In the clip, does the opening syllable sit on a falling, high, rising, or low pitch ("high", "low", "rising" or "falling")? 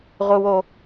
high